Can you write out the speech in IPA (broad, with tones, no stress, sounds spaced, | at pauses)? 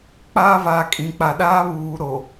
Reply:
k͡p aː˦ v aː˨ kʼ ĩ˨ k͡p a˨ ɗ aː˦ β uː˨ ɾ o˨